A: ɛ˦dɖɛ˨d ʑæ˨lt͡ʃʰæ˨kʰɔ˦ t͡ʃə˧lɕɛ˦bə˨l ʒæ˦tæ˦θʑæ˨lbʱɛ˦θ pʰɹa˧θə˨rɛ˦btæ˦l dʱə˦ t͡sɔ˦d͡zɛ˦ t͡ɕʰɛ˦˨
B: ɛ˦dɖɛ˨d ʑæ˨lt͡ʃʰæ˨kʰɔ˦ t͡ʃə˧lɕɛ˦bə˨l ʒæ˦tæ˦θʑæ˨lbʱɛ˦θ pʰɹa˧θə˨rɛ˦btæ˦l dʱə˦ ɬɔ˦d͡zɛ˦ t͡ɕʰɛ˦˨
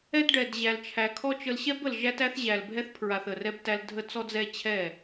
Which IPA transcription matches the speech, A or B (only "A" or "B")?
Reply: A